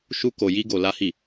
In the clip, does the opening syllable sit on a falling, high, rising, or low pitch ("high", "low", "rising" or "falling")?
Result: high